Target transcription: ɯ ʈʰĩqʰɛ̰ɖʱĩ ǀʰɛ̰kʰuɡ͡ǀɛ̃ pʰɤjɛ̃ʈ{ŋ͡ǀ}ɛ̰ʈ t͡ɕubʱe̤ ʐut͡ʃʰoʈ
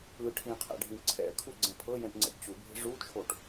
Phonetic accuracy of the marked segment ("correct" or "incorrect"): correct